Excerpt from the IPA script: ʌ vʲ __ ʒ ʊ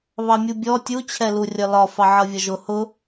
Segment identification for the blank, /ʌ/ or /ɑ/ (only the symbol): ʌ